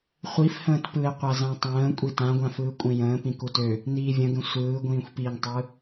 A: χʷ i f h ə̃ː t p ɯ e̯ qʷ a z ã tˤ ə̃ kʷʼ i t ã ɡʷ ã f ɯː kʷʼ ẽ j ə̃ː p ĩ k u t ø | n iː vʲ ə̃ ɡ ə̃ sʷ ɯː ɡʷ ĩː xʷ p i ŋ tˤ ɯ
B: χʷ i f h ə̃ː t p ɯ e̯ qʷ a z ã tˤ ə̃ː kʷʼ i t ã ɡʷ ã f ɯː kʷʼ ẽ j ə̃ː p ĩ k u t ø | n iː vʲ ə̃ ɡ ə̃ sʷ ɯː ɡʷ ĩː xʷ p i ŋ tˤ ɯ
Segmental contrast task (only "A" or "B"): B